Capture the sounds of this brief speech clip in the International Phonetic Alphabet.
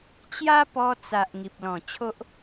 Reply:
t͡ɕ j a˦ p ɔ˧ t͡s a˨ ʔ ŋ i˨ p̚ l ɔ̃˨˩ t͡ɕʰ o˦ ʔ

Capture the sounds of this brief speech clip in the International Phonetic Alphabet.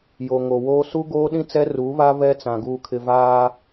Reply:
j o˨ ŋ o˨ w oː˦ s u˦ ɡ oː˦ ɗ ĩ˦ t͡s ɛ˦ r uː˨˦ β a˦ β ɛ˦ t͡s ã˨ ɡ uː˨ kʰ ɪ˨ v aː˦

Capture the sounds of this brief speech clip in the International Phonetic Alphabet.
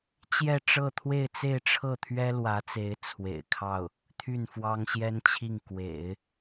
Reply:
t͡ɕ j ɛ˥˧ ʈ͡ʂ ɤ˥˧ t̪ʰ w e˥˧ ɪ̯ t͡s e˥˧ ɪ̯ ʈ͡ʂʰ ɤ˥˩ t̪ʰ ɥ ɛ˥ l w ä˧˥ t͡s e˧˥ ɪ̯ t͡sʰ w ḛ˨˩ ɪ̯ kʰ ɑ˥˩ ʊ̯ | t̪ʰ y˥˩ n f w ɑ˥ ŋ ɕ j ɛ˥ n t͡ɕʰ i˥˩ ŋ k w ḛ˨˩˦ ɪ̯

